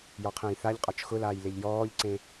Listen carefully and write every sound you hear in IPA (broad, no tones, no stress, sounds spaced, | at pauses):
j ɔ qʰ ə̃ː j θ a ʎ qʼ ɒ t͡ʃ x ʊ l aː j l e ʎ j ɔː ʎ ǀ ẽ